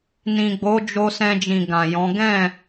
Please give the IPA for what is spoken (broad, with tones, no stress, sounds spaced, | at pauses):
n ĩ˨ ɡ͡b o˨˦ d͡ʒ o˧ s ɛ̃˧ d͡ʒ ĩ˨ ɡ ã˨ j ɔ̃˨˦ ɡ ɛ̃˦˨